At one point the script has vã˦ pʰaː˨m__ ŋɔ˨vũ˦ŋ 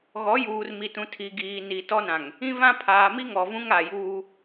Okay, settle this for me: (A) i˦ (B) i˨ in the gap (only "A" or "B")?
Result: A